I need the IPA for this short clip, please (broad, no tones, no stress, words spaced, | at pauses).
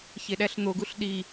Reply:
çeɗæɬn̪oɡuɬ ɗi